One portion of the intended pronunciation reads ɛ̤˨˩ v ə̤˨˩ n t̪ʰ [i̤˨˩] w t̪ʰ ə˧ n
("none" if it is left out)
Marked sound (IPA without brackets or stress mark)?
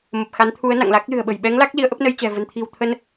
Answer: i̤˨˩